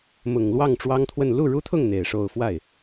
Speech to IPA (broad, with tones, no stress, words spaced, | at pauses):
mʊ˨˩ŋlwɑ˥˩ŋ ʈ͡ʂwɑ˥ŋt̪ʰwə˥˧n lu˥˩ɻu˥t̪ʰʊ˥˩ŋ n̪e˨˩ɪ̯ʂo˥˧ʊ̯ fwa˥˩ɪ̯